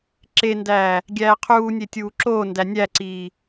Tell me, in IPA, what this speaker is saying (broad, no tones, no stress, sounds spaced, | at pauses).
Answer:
ǁ e n d æː | ɡʲ æː qʰ uː nʲ e tʲ uː ǁ oː n d æ nʲ æ ǀ iː